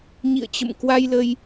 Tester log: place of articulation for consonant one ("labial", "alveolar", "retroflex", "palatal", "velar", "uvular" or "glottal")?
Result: palatal